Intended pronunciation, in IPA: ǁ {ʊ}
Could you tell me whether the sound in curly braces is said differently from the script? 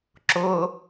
no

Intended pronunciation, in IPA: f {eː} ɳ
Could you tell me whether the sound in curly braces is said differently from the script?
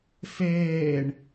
no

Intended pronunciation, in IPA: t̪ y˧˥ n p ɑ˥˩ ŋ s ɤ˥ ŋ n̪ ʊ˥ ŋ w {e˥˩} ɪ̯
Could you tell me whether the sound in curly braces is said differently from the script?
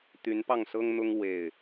no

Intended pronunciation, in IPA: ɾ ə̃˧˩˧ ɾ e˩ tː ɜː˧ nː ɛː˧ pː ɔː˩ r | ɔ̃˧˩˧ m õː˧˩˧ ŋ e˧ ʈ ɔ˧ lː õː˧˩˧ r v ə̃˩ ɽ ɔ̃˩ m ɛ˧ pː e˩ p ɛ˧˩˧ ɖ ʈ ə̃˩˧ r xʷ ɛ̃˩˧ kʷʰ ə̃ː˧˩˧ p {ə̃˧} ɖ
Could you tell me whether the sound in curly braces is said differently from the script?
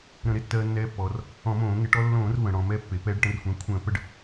yes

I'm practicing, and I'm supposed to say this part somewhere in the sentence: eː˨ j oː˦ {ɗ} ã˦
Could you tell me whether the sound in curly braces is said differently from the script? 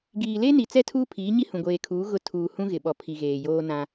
yes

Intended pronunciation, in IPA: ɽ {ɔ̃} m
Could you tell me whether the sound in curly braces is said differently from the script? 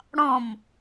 no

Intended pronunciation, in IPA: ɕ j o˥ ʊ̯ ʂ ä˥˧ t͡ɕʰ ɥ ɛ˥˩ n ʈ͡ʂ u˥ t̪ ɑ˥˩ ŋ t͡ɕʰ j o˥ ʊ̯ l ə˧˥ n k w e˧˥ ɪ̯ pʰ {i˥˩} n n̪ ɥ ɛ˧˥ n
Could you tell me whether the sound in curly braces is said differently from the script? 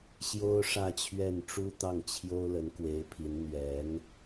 yes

